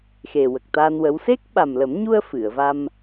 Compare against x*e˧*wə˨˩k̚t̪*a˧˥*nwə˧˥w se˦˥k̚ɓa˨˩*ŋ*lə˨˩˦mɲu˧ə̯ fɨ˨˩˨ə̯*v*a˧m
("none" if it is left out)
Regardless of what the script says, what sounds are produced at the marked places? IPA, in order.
e˨˩, a˧, m, v

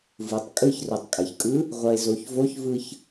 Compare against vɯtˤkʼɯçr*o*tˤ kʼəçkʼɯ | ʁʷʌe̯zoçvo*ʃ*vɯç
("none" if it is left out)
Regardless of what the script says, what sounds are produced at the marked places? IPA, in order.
o, ç

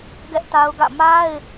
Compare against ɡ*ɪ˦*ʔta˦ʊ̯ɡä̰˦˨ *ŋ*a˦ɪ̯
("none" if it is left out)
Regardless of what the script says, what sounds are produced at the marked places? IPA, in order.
ɛ˦, m

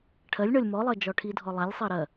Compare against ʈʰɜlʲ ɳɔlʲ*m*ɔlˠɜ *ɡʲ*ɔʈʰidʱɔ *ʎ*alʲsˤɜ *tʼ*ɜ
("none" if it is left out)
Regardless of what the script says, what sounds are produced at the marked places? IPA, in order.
m, d͡ʒ, lˠ, ɾ

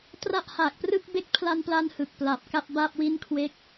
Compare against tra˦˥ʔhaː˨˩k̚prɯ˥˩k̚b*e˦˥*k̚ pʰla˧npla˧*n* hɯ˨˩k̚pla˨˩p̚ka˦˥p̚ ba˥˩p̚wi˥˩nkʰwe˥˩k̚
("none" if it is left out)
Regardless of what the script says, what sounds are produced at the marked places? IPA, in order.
e˥˩, n

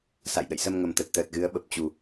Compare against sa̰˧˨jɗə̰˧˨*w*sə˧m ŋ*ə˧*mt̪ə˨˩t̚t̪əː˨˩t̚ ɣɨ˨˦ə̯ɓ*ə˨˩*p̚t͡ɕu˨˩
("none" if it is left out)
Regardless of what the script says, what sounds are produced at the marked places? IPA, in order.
j, ə˨˩, ə˨˩

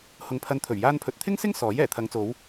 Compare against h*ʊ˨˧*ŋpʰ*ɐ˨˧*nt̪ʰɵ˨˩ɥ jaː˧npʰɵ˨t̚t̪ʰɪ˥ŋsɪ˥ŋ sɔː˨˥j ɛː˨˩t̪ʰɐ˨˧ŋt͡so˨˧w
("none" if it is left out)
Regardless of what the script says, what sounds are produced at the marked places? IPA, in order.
ʊ˨, ɐ˨˧

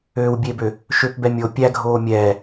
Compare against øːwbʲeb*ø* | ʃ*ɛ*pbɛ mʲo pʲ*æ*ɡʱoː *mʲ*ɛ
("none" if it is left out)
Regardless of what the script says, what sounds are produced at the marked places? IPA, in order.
ø, ø, æ, mʲ

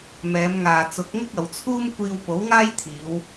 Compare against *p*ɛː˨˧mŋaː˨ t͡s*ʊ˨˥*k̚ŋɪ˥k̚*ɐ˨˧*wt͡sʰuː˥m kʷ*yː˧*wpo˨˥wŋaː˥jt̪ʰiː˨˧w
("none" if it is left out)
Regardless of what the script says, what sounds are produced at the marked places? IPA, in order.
m, ʊ˨˥, ɐ˨˧, iː˧

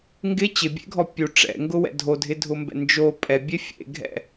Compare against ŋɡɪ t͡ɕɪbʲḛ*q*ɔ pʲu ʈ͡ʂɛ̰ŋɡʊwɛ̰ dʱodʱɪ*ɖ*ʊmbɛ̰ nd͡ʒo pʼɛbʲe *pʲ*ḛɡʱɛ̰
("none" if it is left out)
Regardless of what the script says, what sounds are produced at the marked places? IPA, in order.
ɡʱ, dʱ, fʲ

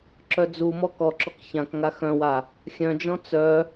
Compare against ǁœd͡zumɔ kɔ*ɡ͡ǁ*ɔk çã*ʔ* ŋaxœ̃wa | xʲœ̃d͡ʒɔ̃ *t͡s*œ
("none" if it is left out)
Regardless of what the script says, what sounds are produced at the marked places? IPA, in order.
ǁ, k, t͡s

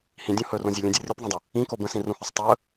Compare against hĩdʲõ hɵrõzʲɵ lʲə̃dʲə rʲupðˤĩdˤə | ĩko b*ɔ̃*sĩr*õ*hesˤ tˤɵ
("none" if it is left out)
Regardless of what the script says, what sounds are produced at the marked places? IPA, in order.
ə̃, ũ

